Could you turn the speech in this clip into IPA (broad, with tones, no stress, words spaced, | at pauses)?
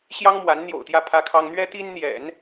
ɕjɑ˥ŋmwa˧˥nn̪jo̰˨˩ʊ̯t̪jä˥˩ pʰä˥kʰɑ˥ŋ n̪ɥɛ˥t̪i˥n n̪jɛ̰˨˩˦n